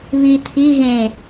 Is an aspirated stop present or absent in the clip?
present